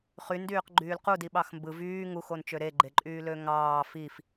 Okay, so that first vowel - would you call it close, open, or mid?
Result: close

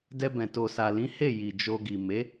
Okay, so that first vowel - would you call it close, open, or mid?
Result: mid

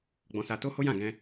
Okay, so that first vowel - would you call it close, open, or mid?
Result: mid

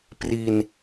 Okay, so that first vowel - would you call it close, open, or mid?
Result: close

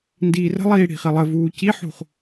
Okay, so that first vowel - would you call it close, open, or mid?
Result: close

